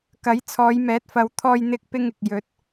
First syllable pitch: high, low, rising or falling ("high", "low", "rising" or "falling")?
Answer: rising